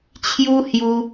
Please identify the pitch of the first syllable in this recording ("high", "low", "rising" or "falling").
high